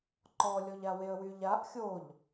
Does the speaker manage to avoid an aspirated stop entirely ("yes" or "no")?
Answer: yes